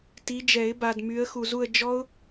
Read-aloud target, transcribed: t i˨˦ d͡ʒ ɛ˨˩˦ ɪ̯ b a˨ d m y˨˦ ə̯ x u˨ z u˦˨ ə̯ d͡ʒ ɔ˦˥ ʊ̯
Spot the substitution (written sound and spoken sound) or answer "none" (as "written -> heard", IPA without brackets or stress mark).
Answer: none